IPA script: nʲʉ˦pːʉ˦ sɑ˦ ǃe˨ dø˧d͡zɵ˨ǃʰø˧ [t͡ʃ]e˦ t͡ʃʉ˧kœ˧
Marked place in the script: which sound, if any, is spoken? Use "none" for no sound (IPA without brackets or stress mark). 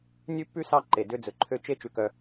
t͡ʃ